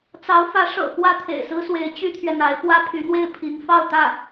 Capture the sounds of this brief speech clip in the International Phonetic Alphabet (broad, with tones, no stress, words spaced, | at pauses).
t͡sɑ˧˥ʊ̯fä˧˥ ʂɤ̰˨˩ xwä˥t̪ʰḛ˨˩ɪ̯sɹ̩˥swe˧˥ɪ̯ t͡ɕy˥t̪ʰɥɛ˨n̪a˧˥ɪ̯ pwä˥pʰy˧˥n̪we˥˩ɪ̯ pʰi˧˥ŋ fɑ˥˧ʊ̯t̪ä˥˩